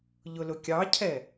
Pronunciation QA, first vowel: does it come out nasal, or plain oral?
oral